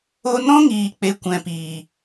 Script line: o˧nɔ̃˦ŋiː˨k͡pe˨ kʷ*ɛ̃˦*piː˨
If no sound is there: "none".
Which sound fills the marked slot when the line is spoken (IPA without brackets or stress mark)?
ɛ̃˨